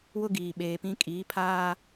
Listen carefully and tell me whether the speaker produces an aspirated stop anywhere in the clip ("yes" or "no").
yes